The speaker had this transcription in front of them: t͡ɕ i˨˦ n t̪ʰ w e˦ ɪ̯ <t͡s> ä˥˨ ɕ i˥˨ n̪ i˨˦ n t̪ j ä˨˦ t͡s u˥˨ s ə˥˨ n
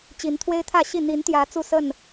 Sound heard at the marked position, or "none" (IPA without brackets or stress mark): t̪ʰ